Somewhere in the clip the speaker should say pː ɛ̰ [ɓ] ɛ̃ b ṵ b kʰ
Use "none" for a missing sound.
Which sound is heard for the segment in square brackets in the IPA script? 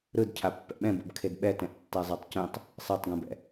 ɓ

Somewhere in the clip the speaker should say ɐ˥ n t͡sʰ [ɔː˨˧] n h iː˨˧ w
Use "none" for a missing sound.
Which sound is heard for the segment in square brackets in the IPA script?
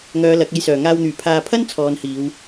ɔː˨˧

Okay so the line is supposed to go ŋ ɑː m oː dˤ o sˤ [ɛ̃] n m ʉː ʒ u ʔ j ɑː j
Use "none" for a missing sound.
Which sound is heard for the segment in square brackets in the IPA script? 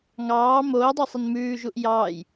ɛ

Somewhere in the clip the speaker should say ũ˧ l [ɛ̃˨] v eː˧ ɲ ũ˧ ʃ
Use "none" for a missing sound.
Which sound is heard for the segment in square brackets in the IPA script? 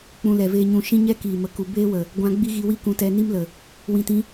ɛ˨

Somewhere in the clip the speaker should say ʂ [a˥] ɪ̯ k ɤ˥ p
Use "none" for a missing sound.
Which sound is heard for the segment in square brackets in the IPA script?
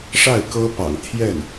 a˥˩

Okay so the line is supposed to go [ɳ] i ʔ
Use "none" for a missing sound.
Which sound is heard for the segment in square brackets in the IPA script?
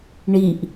ɳ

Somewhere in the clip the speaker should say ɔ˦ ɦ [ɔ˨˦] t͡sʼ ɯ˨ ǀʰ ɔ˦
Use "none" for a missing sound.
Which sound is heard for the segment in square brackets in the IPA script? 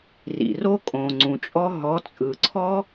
ɔ˨˦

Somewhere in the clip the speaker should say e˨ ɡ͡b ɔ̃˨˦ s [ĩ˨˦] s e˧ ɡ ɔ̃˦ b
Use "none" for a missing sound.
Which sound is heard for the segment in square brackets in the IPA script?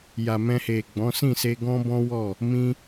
ĩ˦˨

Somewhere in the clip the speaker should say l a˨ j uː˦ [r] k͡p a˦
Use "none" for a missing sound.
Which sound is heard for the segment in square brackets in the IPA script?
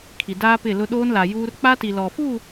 r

